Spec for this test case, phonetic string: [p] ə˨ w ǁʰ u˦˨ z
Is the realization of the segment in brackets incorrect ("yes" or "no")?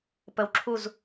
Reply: no